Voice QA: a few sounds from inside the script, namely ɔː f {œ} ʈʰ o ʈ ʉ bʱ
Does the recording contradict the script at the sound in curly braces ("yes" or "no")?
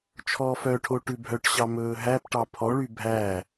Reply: no